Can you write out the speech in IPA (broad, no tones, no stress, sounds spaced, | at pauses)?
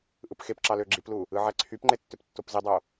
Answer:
ʔ ɯ p x e p ǁ ɑ l ø ɡ͡ǁ i p l u | ɯ ʕ æ ǀʰ y p ŋ͡ǃ e tː ø p tː o p z i dˤ o